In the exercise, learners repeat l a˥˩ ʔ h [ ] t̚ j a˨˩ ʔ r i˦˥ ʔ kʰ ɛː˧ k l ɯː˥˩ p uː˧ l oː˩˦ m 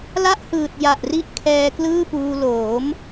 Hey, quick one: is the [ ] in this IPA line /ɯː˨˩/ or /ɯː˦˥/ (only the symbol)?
ɯː˨˩